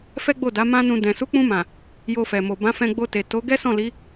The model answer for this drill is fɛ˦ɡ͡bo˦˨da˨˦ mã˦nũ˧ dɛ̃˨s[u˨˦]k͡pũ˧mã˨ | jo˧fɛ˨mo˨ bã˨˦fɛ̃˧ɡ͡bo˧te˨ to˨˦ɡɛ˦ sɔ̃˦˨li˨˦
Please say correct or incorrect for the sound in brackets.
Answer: correct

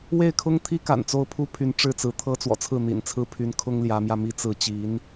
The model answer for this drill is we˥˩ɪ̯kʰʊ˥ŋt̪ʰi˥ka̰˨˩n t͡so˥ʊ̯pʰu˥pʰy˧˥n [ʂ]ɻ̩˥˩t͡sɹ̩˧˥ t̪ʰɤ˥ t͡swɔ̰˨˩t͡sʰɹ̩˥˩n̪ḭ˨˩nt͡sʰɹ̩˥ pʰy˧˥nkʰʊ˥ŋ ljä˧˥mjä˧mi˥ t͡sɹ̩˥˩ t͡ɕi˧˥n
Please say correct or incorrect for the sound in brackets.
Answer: incorrect: ʈ͡ʂ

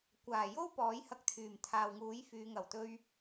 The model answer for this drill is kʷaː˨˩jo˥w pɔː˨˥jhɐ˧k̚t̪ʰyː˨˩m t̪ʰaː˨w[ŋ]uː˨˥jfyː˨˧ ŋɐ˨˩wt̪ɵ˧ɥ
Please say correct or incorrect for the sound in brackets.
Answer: correct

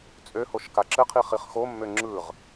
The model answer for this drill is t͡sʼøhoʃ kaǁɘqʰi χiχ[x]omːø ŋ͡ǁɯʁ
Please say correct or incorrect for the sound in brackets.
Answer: correct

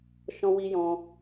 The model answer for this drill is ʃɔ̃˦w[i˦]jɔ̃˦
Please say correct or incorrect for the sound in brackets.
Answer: correct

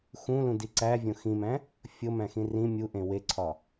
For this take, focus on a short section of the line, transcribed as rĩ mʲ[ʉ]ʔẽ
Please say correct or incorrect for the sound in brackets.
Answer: incorrect: u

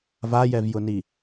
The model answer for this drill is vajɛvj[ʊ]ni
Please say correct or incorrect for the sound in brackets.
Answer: correct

